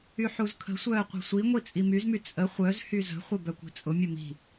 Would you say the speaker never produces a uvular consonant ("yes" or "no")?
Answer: no